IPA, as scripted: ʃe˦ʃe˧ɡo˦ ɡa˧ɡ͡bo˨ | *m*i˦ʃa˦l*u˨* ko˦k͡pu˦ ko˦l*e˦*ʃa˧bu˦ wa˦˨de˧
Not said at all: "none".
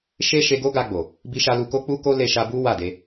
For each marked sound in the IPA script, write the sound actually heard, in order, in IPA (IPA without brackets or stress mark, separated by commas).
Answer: b, u˧, e˧